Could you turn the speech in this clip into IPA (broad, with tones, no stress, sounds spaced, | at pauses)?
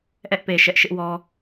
ʔ ɛ˦ ʔ p e˨ ʃ ɛ˦ ʔ ʃ ɪ˦ ʔ w ɔ˦